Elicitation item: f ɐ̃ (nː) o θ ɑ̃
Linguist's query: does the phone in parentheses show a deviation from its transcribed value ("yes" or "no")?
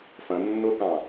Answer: no